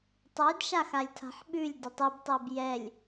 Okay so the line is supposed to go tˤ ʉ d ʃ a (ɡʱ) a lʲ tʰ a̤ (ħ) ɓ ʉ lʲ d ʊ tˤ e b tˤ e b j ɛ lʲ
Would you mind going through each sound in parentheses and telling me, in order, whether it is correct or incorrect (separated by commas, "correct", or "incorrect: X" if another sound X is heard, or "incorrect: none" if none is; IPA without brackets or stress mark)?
incorrect: x, correct